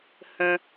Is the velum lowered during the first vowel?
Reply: yes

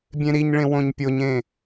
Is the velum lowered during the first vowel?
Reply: yes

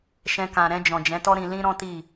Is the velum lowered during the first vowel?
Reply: yes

